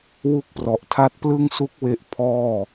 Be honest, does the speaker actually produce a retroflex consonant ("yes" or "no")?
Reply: no